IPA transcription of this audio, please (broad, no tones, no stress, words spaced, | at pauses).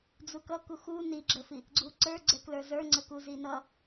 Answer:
d͡zukʌku xu niɡ͡ǁəfi | ɡ͡ǀuǀə˞ɡ͡ǀɛ klə˞zə˞ŋ͡ǀə kuzinʌ